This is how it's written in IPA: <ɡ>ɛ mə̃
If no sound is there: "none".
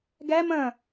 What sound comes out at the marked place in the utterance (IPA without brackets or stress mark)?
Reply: ɡ